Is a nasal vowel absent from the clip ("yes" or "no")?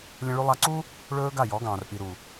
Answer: no